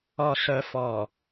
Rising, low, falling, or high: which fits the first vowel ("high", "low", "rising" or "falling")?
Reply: low